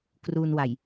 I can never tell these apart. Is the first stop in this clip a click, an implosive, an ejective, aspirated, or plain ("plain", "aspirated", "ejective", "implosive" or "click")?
plain